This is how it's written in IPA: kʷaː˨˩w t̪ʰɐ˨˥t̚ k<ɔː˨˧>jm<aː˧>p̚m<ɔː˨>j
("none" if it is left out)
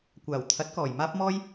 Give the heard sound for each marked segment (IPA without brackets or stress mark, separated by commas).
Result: ɔː˨˩, aː˥, ɔː˥